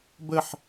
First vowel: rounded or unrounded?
unrounded